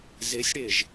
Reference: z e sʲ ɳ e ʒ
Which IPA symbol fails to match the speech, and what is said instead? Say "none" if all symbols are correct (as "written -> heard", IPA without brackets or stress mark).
ɳ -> ɽ